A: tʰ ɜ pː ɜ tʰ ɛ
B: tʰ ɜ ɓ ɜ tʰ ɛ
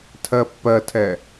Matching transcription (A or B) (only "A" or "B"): A